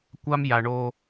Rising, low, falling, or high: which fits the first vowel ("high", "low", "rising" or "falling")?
high